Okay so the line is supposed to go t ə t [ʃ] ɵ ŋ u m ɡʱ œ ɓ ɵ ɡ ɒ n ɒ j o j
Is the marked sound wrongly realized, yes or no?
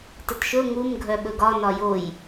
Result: no